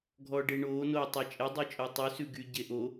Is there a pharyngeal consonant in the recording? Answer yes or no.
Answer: no